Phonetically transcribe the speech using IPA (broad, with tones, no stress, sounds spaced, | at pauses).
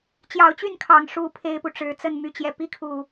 t͡ɕ j ɑ˨˦ ʊ̯ t͡ɕ y˥˨ n kʰ ɑ˨˩ ŋ ʂ u˥˨ pʰ e˦ ɪ̯ p u˨ ʈ͡ʂ ɻ̩˨˦ t͡s ə˥˨ n m y˨˦ t͡ɕ j ɛ˨˩ p i˦ kʰ u˨˩